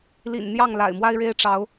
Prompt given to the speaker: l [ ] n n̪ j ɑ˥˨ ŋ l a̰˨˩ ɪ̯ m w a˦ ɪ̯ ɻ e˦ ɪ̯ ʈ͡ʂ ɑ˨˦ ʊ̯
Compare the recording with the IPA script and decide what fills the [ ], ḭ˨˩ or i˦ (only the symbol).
ḭ˨˩